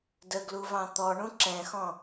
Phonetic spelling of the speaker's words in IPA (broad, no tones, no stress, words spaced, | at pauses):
dəɡluvɑ̃ t̪ɔɳũ ǁɛ̃xɔ̃